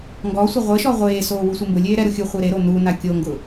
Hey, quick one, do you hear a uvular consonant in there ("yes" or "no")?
yes